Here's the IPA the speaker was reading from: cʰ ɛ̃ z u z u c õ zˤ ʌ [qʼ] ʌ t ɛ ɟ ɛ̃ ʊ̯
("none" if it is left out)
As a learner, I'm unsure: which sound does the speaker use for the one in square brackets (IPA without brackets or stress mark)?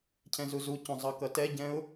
k